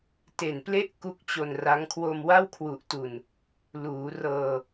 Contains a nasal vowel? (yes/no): no